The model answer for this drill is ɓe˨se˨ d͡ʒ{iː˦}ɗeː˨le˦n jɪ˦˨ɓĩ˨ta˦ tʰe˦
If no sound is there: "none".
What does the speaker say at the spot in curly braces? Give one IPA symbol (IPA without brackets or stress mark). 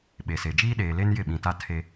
iː˦